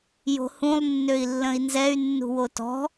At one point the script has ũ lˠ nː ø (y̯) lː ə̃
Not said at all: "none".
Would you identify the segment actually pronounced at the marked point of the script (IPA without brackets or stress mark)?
i̯